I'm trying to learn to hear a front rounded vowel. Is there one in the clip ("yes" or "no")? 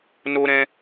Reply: no